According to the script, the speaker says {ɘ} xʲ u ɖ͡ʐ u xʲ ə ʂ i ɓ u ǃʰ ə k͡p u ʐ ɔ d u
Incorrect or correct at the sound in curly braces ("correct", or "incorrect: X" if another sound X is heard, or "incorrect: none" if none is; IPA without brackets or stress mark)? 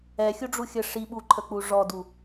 incorrect: ɛ